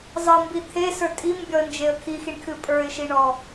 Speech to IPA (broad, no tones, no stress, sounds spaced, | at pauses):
zˤ ɤ m b i t̪ʰ e s ə˞ tʼ i m bʲ ɔ ə̯ n d͡ʒ e ə̯ kʰ i x i ɳ kʰ ɨ pʼ ə˞ ɪ̯ ʃ i ɳ ɔ